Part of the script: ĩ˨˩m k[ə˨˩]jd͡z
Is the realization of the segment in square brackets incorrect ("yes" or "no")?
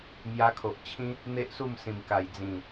yes